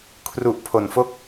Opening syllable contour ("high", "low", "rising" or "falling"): low